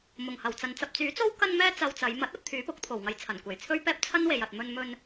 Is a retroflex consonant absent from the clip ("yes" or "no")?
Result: yes